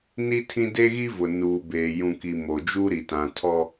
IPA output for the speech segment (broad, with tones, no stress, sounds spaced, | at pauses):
n i˦ tʰ ĩ˦ d e˦ ɣ i˦ v ʊ˨ n uː˨ b eː˨ j ũ˨ k i˨ m o˨ d͡ʒ u˦ ɾ i˨ t ã˨ tʰ ɔ˦